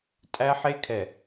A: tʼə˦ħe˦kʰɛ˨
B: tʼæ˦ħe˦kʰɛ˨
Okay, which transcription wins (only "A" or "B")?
B